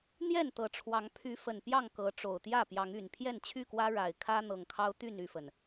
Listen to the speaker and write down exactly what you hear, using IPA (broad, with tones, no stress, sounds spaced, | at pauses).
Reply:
n̪ j ɛ˥˨ n t̪ ɤ˨˦ ʈ͡ʂʰ w ɑ˨˦ ŋ pʰ y˨˦ f ə˨˩ n p j ɑ˥˨ ŋ k ɤ˨˦ ʈ͡ʂ o˨˩ ʊ̯ t̪ j ä˥˨ p j ɑ˨˦ ŋ y˨˩ n pʰ j ɛ˥˨ n t͡ɕʰ y˥˨ k w ä˦ ɻ a˨˩ ɪ̯ kʰ ä˦ n̪ ɤ˨˩ ŋ kʰ ɑ˦ ʊ̯ t̪ y˥˨ n y˥˨ f ə˩ n